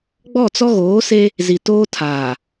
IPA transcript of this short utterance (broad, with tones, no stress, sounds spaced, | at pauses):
ɡ͡b ɔ˦˨ t͡s ɔ˦ ɣ oː˨˦ s e˦ | z i˨ t oː˦ tʰ aː˨